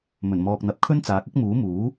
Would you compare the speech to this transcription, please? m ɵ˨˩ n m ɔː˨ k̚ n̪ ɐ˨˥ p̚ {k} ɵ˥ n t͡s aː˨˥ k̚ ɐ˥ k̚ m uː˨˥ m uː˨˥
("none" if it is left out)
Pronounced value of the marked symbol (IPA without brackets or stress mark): kʰ